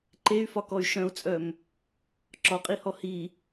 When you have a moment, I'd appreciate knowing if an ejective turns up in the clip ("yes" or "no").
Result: yes